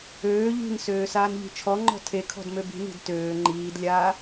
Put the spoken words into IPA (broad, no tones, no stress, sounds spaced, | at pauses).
øː ʎ i̤ n s øː s aː n ʎ i̤ t͡ʃʰ ɔ ŋ͡ǃ ɔ̤ tʰ e kʰ ɔ̤ d m ø b i̤ n i̤ d t øː ŋ͡ǃ iː d lʲ aː